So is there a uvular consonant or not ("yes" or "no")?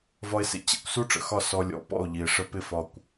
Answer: no